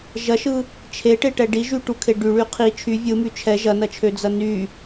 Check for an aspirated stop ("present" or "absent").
present